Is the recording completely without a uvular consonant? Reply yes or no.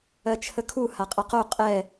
no